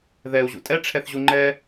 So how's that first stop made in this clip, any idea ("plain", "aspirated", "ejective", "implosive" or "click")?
ejective